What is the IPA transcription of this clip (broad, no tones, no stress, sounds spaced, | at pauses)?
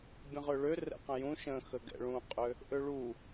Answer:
bʲ ə̃ ʁ ø ɭ ø r ɛ̰ q ə̃ j ũ ʃ ə̃ x ə ɡ ɛ̰ ɭ ũ qʼ ø | ʔ ø ɭ u